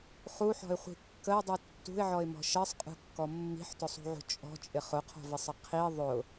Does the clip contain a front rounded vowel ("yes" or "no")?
no